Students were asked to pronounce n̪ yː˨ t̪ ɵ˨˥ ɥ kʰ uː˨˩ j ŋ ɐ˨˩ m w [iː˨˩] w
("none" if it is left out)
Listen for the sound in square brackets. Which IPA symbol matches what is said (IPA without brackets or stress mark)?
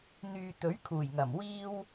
iː˧